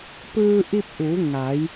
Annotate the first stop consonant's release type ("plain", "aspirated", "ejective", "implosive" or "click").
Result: plain